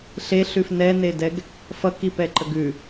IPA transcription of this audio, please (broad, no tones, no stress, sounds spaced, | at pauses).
ɬ e ɬ ʉ f n ɛ n e d ɛ ɡ | f ʌ k i p ɛ ǃ ə ɡ ʉ